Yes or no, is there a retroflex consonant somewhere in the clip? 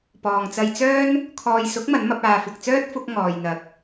no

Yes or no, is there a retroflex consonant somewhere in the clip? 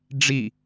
yes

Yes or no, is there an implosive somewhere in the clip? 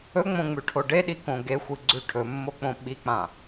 yes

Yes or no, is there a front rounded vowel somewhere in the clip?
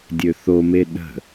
yes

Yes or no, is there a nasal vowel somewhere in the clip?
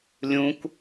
yes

